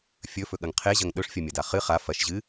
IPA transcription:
fʲ ɵ f ɵ ɠ ɐ ŋ qʰ e ʑ ɐ ŋ ɗ ɵ ʂ fʲ ɐ mʲ ɐ d a χ ɨ χ a f ɐ ʃ ʑ ɨ

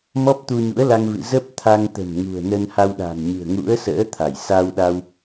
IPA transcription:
m ɔ˦˥ p̚ t̪ u˧ ɲ ṵ˧˥ ə̯ l a˧ ŋ v ɨ̰˧˨ z ə˦˥ p̚ t̪ʰ a˧ ŋ t̪ ə̤˨˩ m ŋ ṳ˨˩ ə̯ n ə˧ n h a˧ w ɗ a̤˨˩ n ɲ ɨ̤˨˩ ə̯ ŋ ṵ˧˥ ə̯ s ə̰ː˧˥ t̪ʰ a˧˩ j s a˧ w ɗ a˧ w

